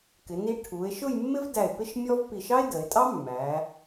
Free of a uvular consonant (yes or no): yes